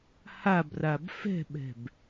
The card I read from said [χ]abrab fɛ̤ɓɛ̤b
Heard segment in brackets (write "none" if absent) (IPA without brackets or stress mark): h